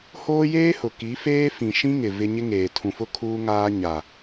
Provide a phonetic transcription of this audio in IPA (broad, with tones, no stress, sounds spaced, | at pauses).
h oː˦ j eː˦ h ʊ˨ k i˨˦ f eː˦ f ĩ˨ ʃ ĩ˦ ŋ ɪ˨ v ɪ˦ ɲ ɪ˦ ŋ eː˨ tʰ ũ˨ f ʊ˦ kʰ uː˦ ŋ aː˦ ɲ a˨